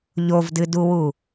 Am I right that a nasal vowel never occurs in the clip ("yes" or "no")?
yes